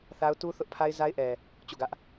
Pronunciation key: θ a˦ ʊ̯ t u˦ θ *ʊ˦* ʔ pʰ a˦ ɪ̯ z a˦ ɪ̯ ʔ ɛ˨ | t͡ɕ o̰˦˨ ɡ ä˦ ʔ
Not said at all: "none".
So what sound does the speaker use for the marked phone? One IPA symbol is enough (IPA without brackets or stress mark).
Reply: ʊ˦